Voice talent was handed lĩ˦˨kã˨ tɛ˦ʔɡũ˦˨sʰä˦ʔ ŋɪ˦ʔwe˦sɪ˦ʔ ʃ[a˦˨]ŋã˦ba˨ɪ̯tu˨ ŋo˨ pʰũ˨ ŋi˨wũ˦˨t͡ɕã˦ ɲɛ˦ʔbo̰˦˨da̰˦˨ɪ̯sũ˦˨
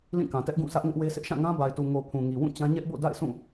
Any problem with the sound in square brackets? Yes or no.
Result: yes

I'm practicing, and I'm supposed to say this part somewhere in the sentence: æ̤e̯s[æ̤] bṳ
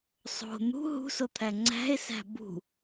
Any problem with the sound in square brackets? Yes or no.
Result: no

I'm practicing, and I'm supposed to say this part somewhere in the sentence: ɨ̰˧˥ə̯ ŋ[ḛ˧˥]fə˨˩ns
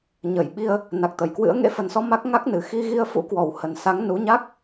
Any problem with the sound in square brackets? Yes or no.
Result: no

